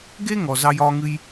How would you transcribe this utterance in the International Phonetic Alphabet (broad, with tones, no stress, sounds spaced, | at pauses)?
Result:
ɡ e˥ ŋ ɔ˧ z ɑ˥ j ɒː˥ ŋ ɨ˥ j